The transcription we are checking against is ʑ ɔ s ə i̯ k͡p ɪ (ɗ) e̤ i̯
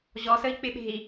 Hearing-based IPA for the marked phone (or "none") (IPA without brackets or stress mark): ɓ